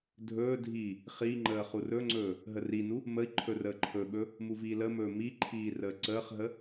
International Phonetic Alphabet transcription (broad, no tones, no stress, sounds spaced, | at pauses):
dʱ ɵː dʱ iː | χ i ŋ͡ǃ əː χ u r ɵ ŋ͡ǀ ɵː | ɦ ə r i n u | m ə i̯ ǃʰ ɵ r əː ǃʰ ɵ ɓ ɵ | m u v iː l ə m ɵː m i ǃʰ iː r əː ǀ əː χ ɦ ə